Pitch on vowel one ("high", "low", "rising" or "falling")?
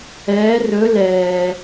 rising